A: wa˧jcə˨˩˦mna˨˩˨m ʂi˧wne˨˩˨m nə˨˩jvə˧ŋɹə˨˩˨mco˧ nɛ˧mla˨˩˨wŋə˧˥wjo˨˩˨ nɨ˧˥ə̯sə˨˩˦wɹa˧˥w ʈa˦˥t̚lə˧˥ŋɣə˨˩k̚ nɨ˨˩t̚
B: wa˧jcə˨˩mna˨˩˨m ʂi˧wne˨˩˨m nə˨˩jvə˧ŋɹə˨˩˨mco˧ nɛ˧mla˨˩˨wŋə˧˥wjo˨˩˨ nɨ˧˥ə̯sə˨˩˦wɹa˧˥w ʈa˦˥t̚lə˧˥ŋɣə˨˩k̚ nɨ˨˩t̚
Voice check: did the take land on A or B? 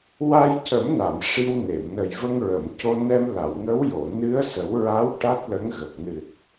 A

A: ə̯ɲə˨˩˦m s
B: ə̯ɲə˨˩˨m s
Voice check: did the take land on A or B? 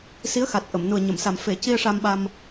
B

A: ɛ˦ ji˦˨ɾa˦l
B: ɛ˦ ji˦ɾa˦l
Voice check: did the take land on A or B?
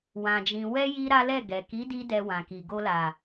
B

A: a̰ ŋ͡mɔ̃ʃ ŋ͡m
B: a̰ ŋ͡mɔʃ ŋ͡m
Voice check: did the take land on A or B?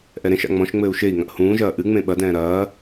A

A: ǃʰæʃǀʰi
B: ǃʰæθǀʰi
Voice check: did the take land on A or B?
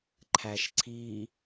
A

